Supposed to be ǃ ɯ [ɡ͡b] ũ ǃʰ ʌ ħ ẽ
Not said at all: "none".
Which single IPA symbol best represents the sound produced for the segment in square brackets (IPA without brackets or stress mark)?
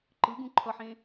ɡ